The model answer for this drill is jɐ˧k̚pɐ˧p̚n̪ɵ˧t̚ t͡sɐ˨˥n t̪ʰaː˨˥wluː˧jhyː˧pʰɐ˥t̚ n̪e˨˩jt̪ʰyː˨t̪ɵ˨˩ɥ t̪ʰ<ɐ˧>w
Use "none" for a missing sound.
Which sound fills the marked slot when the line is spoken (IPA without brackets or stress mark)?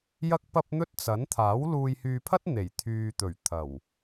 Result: ɐ˨˩